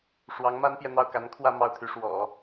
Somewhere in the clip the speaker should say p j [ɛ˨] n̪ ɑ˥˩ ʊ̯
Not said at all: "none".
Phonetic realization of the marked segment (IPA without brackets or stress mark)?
ɛ˨